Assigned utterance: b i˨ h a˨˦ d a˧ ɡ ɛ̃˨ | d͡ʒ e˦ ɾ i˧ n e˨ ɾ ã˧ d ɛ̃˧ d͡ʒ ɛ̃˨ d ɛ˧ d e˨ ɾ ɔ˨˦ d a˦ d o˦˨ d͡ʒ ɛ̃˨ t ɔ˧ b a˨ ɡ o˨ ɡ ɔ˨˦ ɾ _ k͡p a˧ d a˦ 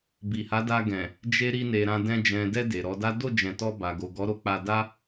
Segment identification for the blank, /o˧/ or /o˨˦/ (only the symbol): o˧